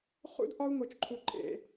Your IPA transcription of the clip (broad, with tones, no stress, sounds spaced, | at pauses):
χ ṵ˦ d ʔ ɒ˦ u̯ ŋ o˨ t͡ʃ ǃʰ u˨ ǃʼ ḛ˨